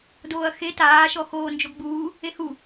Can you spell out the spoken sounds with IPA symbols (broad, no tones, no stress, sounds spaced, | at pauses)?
d oː ɐ̯ x e t aː ʃ ɔ x oː n d͡ʒ o ɡ ɡ͡b uː | e h u